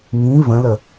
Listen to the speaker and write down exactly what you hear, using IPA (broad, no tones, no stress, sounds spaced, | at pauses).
ŋ ĩ v ə̃ l ə